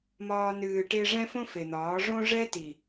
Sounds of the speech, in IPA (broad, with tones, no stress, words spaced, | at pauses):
mɒː˧ nɨː˧ʈe˦ ʐɛ̃˦fõ˦ fe˨n̪ɒː˨˦ ʐõ˦ʐɛ˦ ti˨